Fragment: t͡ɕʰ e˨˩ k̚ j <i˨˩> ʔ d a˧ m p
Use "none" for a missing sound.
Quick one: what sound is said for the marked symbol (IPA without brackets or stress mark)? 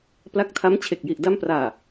i˨˩